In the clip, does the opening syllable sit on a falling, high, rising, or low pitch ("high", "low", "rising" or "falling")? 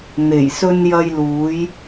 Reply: low